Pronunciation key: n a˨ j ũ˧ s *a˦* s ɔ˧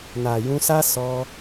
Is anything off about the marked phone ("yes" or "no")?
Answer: no